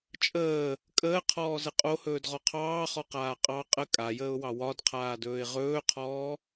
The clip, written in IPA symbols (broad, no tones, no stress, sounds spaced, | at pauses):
t͡ʃʼ əː | kʼ əː qʰ ɔː z ə qʼ o h ɵː d ʁ ɔ qʰ ɑː χ ɔ q aː qʼ ɑ qʼ ə kʼ a j əː ʊ̯ w ɑ w ɒ d qʰ aː d ɵː ɪ̯ ʁ ɵː qʰ ɔː